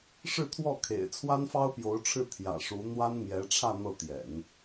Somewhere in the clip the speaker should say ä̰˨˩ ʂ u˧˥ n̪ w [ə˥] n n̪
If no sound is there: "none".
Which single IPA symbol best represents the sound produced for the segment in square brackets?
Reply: a˥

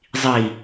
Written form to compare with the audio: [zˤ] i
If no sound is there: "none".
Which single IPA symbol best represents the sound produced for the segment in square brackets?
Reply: zˤ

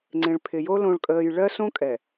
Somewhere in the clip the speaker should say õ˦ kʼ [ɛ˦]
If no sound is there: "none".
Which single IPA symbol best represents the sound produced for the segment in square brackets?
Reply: ɛ˨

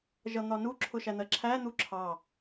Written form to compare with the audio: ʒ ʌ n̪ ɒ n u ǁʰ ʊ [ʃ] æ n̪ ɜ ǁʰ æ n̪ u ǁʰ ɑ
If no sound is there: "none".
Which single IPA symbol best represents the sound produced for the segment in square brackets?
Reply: ʃ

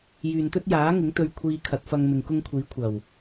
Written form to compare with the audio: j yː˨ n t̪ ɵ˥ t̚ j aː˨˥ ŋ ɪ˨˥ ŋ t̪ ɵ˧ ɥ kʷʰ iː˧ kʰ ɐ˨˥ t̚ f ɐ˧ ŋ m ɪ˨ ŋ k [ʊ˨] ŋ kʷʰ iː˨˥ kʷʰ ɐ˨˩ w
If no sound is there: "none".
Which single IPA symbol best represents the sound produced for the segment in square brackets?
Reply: ʊ˥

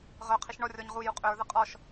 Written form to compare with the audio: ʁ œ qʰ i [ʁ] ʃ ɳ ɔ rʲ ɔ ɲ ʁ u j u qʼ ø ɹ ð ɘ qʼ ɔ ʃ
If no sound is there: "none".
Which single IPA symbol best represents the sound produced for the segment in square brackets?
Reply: none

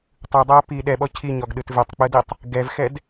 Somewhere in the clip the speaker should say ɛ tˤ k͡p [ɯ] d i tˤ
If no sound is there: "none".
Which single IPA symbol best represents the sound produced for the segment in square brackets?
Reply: ɯ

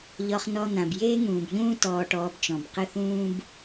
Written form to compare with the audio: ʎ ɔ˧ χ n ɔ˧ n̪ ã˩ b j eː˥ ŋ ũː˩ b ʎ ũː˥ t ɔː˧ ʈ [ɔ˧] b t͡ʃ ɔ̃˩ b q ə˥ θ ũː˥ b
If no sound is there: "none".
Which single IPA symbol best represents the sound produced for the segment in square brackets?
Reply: ɔː˧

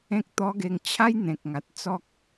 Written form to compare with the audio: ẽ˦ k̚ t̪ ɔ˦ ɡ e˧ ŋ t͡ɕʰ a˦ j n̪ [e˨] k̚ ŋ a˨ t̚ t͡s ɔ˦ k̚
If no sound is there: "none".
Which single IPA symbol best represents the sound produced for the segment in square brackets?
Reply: ẽ˨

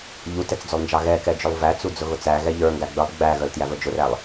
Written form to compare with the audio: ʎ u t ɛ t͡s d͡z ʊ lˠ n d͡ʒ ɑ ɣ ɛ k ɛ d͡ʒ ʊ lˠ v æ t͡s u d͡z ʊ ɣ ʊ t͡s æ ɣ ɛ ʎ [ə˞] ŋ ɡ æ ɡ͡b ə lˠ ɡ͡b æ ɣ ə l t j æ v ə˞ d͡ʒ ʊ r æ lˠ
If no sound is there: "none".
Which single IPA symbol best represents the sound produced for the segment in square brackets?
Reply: ə˞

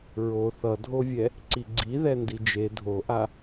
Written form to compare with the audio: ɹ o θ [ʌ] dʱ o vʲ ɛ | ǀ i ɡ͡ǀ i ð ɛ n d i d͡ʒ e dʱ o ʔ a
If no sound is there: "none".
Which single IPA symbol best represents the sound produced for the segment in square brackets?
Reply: ʌ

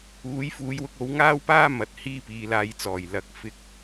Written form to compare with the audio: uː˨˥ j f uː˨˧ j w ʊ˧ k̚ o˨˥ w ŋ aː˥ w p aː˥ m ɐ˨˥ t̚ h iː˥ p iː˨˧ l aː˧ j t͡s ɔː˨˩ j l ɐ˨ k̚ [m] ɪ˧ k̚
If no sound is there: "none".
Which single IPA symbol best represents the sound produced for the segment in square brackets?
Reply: f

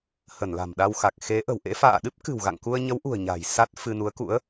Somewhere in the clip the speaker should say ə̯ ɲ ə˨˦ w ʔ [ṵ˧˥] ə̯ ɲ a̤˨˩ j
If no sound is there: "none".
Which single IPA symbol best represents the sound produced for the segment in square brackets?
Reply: ṳ˨˩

